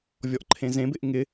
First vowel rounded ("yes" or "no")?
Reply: yes